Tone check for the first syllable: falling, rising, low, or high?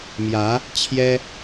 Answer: rising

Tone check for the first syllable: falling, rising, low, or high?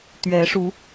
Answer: rising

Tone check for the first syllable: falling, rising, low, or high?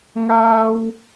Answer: high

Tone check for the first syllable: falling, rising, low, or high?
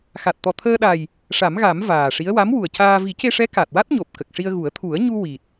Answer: low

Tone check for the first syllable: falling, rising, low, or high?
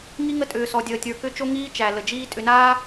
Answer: high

